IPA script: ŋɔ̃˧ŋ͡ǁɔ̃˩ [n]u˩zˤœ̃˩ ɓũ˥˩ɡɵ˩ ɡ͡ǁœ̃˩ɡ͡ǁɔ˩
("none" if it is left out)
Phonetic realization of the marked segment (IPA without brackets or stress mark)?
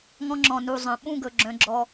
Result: n